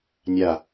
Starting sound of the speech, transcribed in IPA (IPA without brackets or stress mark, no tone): nʲ